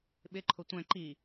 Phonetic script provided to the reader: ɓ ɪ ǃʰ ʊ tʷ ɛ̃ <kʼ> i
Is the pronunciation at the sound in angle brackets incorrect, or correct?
incorrect